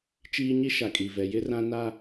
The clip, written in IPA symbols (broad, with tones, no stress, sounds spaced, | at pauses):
t͡ʃ iː˦ ɲ i˦ ʃ a˨ kʼ i˨ v ɛ˨ j ɪ˦ r ã˦ n a˦